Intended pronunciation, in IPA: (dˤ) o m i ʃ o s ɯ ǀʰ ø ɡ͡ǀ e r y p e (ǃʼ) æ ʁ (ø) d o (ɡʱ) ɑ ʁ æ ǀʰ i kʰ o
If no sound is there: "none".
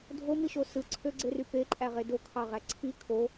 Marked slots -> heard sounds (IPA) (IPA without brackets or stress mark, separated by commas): dʱ, ǃʼ, e, kʰ